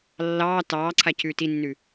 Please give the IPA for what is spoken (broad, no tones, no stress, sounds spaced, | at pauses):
lː ɑː t ɑː ǀʰ a c ʉː t i nː ʉ